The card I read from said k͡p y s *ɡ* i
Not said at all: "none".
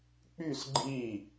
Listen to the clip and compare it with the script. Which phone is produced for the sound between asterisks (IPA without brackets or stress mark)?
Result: ɡ͡ǃ